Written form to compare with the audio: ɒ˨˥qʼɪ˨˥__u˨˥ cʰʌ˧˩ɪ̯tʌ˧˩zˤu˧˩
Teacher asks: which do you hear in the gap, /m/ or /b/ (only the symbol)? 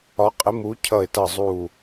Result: m